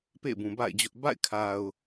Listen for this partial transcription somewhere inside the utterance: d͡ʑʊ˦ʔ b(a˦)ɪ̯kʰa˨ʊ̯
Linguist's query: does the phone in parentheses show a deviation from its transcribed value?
yes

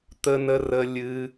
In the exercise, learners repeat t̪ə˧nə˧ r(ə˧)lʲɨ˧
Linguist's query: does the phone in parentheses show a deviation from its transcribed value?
no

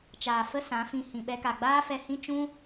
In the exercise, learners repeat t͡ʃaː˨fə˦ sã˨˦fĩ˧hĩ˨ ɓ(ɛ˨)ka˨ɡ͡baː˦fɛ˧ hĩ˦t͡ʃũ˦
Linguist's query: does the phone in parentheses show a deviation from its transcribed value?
yes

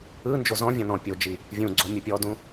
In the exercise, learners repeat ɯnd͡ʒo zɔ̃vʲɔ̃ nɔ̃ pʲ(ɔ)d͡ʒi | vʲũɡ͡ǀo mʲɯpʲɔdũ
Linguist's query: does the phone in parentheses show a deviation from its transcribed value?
yes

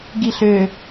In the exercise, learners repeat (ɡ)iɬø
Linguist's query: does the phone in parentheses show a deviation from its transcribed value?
no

